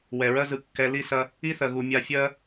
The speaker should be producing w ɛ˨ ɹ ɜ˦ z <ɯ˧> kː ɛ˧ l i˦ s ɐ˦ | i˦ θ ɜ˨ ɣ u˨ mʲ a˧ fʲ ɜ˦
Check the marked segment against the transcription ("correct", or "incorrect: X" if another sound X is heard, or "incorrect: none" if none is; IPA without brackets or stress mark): correct